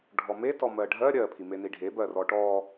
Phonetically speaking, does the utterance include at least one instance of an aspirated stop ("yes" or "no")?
yes